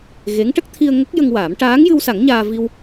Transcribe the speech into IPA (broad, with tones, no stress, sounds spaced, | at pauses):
ɣ e˧˥ ŋ ʈ ə˦˥ k̚ t̪ʰ i˧ ə̯ ŋ ə˦˥ k̚ j ə˧ ŋ w aː˨˩˦ m ʈ aː˧˥ ŋ j ɨ˧ w s a˨˩˦ ŋ ɲ aː˧ v i˧ w